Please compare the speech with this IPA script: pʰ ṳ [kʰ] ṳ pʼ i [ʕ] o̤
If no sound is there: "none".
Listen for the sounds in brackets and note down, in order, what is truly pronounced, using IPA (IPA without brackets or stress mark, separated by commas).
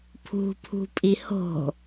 pʰ, h